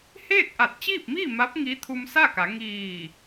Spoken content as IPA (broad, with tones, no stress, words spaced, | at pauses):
heː˥˨k̚ʔa˧˩t̚t͡ɕiː˥˨p̚miː˥˨ ma˧˥p̚ ŋi˧˥ t̪ʰu˧msa˥˨ka˩˧ ŋiː˧˩